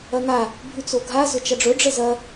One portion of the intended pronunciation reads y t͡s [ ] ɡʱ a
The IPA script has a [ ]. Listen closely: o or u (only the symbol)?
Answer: o